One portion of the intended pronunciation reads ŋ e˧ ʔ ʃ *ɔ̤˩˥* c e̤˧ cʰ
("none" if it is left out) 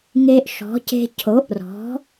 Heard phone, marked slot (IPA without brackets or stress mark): ɔ̤˩˥